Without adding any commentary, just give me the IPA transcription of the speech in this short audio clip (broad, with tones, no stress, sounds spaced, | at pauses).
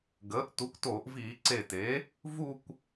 ɡ əː˩˥ ʔ t u˩˥ kʷ t oː˧˩˧ ʔ v iː˧˩˧ ǀ e˧˩ t e˩˥ | v u˥˧ kʷ